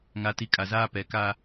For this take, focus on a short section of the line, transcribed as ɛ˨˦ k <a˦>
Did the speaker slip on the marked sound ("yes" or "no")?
no